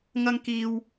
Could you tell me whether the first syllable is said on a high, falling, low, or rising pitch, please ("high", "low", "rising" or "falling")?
high